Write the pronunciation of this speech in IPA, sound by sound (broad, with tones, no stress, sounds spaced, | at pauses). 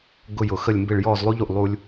ɡ ʊ˥˧ j ʊ˨ x ə˥˧ lʲ m b ɪ˥˧ ɭ j ɔ˥˧ z lˠ u˥ ʎ u˨ ʔ lˠ u˥ lʲ